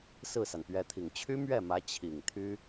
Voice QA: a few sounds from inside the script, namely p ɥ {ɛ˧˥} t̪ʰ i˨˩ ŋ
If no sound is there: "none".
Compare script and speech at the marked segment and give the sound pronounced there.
ɛ˧˥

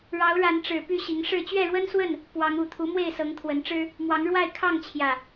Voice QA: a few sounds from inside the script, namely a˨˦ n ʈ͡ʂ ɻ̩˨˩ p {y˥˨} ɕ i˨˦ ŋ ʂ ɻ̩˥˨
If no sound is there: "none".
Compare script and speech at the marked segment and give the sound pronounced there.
y˥˨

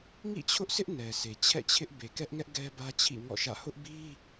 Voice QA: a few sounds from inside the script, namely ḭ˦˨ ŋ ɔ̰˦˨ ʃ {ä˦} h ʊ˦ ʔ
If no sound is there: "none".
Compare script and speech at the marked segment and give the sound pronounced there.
ä̰˦˨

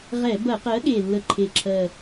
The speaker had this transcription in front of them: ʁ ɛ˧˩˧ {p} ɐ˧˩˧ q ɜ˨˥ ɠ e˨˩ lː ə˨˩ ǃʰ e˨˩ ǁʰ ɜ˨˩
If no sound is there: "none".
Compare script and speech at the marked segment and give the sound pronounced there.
b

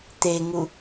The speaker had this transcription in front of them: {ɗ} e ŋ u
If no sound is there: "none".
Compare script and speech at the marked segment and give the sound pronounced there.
t̪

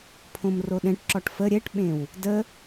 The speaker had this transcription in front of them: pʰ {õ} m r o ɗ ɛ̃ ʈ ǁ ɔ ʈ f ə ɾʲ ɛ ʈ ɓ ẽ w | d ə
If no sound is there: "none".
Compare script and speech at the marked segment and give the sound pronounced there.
õ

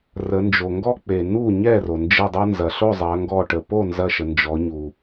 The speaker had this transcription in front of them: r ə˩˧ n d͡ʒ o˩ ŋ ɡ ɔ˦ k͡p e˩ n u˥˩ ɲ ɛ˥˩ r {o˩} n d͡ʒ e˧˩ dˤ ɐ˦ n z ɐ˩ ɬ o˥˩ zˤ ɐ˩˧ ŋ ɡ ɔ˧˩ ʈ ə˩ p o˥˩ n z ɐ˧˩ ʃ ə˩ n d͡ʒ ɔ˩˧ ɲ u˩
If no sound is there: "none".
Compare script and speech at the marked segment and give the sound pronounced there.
o˩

